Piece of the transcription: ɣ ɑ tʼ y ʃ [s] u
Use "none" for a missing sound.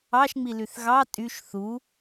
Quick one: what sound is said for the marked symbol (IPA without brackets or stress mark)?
θ